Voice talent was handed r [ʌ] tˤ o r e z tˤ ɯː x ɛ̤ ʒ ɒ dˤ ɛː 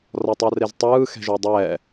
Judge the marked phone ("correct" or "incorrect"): incorrect